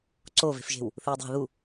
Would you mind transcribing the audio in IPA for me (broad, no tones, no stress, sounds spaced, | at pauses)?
ǀ o v e̤ f ʒ e̤ w | θ ɨː dˤ e̤ ð u